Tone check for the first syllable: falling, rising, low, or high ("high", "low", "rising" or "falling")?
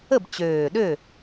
falling